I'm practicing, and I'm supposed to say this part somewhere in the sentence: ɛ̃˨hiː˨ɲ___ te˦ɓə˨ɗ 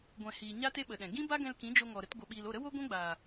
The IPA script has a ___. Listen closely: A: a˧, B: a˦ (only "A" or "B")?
B